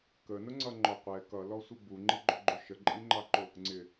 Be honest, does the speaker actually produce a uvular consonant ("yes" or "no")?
yes